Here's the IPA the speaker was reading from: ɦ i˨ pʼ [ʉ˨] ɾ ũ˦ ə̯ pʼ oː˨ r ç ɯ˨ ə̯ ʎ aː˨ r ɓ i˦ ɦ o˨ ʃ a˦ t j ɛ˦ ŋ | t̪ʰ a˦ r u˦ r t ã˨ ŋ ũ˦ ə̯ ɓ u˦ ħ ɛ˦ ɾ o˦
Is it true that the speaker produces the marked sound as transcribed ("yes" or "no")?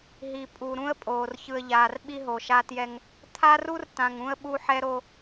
no